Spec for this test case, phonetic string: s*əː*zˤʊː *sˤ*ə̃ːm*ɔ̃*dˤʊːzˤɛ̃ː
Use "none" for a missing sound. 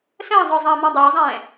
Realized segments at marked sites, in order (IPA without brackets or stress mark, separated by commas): ə̃ː, zˤ, ɔ̃